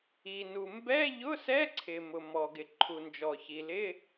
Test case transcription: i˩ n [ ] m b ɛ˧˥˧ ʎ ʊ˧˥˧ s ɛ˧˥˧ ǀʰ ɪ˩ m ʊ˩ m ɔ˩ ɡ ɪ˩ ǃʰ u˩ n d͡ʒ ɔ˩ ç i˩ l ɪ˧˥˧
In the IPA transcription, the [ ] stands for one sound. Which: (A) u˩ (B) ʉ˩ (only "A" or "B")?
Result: A